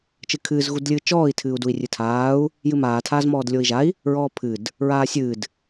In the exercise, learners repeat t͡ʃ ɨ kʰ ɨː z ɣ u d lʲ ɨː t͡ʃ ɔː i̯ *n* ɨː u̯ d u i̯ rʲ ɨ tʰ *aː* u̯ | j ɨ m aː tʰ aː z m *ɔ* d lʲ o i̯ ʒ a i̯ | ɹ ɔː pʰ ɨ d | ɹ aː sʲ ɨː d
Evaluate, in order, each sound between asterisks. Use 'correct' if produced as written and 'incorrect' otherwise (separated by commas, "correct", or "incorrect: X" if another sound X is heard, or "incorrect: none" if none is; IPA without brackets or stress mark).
incorrect: tʰ, correct, incorrect: ɔː